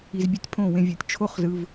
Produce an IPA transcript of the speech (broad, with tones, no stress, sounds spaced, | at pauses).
i˨ z bʲ ɛ˧ tʲ pʰ õ˦˨ w ẽ˧ vʲ u˨ tʲ t͡ʃʰ o˦ χ z ɯ˧ v